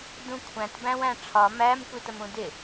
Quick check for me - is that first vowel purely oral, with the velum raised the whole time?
no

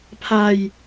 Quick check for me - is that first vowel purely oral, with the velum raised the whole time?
yes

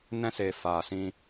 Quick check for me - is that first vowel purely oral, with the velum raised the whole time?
no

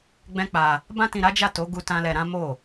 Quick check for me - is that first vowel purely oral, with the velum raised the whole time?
no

